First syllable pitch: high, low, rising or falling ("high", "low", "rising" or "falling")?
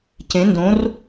rising